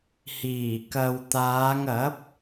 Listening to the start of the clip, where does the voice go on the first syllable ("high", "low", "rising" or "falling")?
low